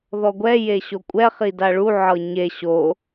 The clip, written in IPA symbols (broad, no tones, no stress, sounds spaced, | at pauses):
ð ɔ ɡʷ ɛ j e ɕ o kʷʼ ɛ χ i d a ɭ u ʕ ɤ ɲ e ɕ o